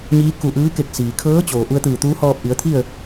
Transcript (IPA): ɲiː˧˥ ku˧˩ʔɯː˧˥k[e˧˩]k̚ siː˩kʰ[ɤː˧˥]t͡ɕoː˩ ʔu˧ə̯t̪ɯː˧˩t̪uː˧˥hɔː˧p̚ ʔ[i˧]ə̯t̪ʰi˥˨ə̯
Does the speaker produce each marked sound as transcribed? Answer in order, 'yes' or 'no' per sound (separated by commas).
yes, yes, no